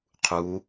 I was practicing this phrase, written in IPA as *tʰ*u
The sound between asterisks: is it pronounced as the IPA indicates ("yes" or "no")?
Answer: no